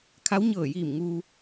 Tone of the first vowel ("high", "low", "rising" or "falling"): rising